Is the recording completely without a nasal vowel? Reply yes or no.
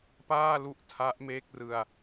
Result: yes